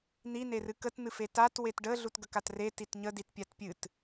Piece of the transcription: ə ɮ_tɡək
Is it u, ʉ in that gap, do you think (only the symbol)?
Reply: u